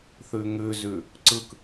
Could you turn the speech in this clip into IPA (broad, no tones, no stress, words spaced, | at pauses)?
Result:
θʉŋʉzʉ | ǀɯk